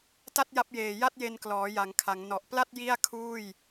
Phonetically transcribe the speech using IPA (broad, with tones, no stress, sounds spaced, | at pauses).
t a˥˩ t̚ j a˦˥ p̚ j eː˨˩ j a˥˩ t̚ j e˧ n k l ɔː˩˦ j a˩˦ ŋ kʰ a˩˦ ŋ n ɔ˨˩ ʔ p l a˥˩ t̚ j i˥˩ a̯ kʰ uː˥˩ j